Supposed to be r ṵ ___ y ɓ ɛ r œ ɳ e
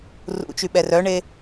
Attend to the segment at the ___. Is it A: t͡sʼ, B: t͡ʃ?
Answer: B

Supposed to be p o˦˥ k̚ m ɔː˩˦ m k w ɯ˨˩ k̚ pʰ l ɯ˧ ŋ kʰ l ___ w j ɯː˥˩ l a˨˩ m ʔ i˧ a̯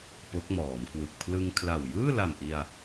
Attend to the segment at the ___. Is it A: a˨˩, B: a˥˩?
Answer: A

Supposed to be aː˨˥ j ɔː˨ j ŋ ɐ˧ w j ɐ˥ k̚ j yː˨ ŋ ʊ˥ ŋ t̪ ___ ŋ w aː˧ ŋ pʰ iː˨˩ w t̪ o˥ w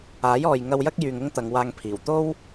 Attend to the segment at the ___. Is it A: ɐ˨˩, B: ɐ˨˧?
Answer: B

